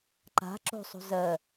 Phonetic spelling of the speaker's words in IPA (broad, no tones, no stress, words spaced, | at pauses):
ǃa̤ ǁo̤sˤṳ zɜ